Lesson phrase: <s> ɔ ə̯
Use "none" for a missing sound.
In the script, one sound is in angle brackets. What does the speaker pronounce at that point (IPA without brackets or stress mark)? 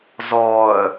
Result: z